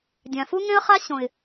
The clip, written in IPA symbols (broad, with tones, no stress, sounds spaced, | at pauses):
dʲ ã˨ f u˦ ŋ ẽ˦ ə̯ χ a˦ ɕ õ˨ ɪ̯